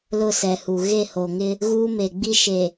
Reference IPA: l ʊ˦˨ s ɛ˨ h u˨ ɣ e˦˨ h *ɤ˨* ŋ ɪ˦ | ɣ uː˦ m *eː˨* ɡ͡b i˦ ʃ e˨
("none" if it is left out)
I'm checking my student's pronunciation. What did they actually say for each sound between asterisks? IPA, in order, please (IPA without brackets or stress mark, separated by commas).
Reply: o˨, e˨